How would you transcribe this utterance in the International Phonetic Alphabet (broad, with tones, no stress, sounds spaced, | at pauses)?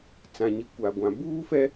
t͡s ã˨ ɲ i˨ kʷ a˨ ɡʷ ã˨ b uː˦ f ɛ˦